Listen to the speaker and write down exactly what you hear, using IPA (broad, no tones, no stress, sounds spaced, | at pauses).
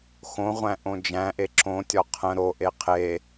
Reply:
x õ ʁʷ æ̃ ʔ õ d͡ʒ æ̃ ʔ e ǁ õ tʲ ɒ qʰ ə̃ ɾ o ʔ e qʰ e